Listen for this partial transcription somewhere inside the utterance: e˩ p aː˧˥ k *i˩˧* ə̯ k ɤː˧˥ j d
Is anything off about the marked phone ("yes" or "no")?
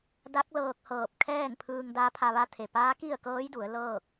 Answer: yes